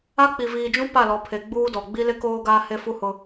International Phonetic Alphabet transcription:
a˦ k͡p i˨ v iː˨ d͡ʒ ũ˦ p a˦˨ l ɔ˨˦ pʰ e˨ ɡ͡b uː˦ d ɔ˨ ɡ͡b i˦ l ɪ˦ k oː˦ ɡ aː˦ h e˦ f u˦ h ʊ˦

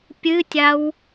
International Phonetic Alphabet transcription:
pʲ ɨ tʲ a w

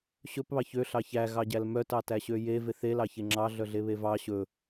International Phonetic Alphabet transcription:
ɕ ɵ p β ɑ ç ø ɬ ɑ ç æ ɣ ɑ ɟ æ l m œ t ɑ t æ ɕ ø j e v e θ e l ɑ ç e ŋ͡ǁ ɑ ɮ œ ɮ e β e v ɑ ɕ ɵ

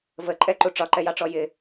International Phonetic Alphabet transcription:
v ə ǃʼ ɛ ǃ u ʈ͡ʂ ɒ ǃ ɛ j ɑ ʈ͡ʂ ɔ j ɪ

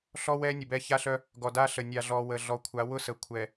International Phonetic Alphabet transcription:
ɬ ɔ˦ w ɛ˦ nʲ ʊ˨ b ɛ˦ ç a˦ ɬ œ˦ | ɡ ɔ˨ d a˦ ɬ ə˨ nʲ a˨ ɮ ɔ˨ w ə˨ ɮ ɔ˨ kʷʰ a˨˦ w ʊ˦ s ə˨ kʷʰ ɛ˨

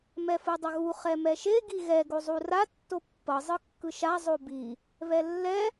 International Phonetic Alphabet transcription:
m ɛ f ɯ dˤ ʌ ɣ u χ ɛ m ɛ ʃ e ɡ i ɣ ɛ ɡ o zˤ u r a tː o pː ʌ zˤ ɯ kː ɯ ʃ a zˤ o b i | β ɛ lː ɛ

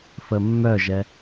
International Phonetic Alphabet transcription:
f ə mː œ ʒ ɛ

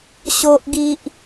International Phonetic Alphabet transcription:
ɕ o˦ ʔ ɡ i˦ ʔ

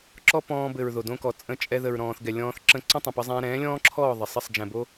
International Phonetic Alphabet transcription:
ǁ ɔ˦ p ɔ̃ː˧ b ɘ˨ ɹ ð o˨ d õ˧ k ɔ˨ t͡sʼ ə̃˧ t͡ʃʼ ɛ˧ ð ə˨ ɹ ɾ ɔ̃ː˨ θ ɡ ɛ˨ lʲ ɔ̃ː˧ θ ǁ ə̃˦˨ ǀ ə̃˦ tˤ ə̃˨ p ə˧ zˤ ɛ̃ː˧ ɾ ɛ̃ː˨˦ lʲ ɔ̃ː˦ ǁʰ ɔː˦˨ ðˤ ə˨ sˤ ə˦˨ sˤ d͡ʒ ɛ̃˨ b o˧

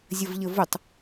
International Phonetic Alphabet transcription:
zʲ ə v ʎ ə v ʊ tˤ

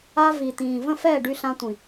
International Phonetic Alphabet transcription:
a˧ v i˨ t̪ ĩː˨ v ə̃˦˨ f ɛː˦˨ ɖ y˧ ɬ ã˧ tʷ ĩ˨

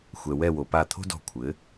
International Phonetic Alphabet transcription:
xʷ ɛ˩ w ɛ˧˩ w o˩ p a˧˩ t̪ʰ o̤˦ d ɔ̤˧˩ kʷʰ ɘː˩˧

